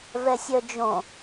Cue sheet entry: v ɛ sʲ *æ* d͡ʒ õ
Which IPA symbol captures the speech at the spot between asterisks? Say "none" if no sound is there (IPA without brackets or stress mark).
œ